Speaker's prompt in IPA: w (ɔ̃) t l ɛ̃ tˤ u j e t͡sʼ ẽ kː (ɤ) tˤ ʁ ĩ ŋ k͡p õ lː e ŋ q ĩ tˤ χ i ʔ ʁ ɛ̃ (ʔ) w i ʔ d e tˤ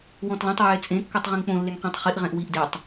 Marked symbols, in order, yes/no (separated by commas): yes, yes, yes